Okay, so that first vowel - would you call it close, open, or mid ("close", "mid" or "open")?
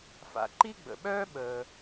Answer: open